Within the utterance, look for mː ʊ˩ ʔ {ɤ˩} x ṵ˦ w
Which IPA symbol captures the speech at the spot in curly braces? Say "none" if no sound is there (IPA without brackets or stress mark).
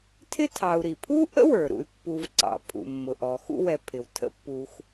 ɔ˩